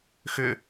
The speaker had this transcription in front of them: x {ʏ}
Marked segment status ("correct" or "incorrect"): correct